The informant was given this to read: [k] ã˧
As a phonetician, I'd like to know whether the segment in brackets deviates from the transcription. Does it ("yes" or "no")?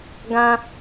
yes